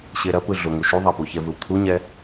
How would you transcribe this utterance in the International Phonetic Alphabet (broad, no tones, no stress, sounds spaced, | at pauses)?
ɕ e ɾ ɐ p ɯ ɮ ʊ ŋ u ʃ u ðˤ a p u ç ɛ v ɯ w t̪ʰ u ɲ ɛ